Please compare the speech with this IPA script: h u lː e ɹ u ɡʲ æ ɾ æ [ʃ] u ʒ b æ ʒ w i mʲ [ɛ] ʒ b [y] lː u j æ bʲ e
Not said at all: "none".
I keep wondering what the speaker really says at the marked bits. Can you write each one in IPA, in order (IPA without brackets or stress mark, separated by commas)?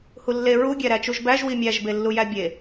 t͡ʃ, æ, e